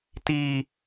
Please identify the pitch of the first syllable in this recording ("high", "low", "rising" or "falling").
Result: high